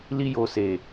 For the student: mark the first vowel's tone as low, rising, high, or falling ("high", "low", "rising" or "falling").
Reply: high